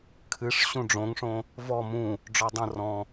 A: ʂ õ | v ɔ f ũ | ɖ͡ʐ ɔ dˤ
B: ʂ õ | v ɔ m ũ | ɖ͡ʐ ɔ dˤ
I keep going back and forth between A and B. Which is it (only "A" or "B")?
B